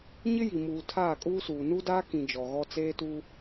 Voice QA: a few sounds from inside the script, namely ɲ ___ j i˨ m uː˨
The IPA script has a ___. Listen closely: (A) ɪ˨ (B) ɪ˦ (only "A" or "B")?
B